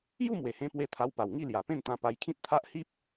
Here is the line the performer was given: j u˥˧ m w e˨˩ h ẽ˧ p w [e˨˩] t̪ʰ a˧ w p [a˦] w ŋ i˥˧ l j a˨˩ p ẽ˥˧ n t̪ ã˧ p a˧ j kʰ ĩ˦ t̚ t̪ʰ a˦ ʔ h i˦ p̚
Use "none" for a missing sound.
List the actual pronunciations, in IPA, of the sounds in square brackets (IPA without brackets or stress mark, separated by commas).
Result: e˧, a˨˩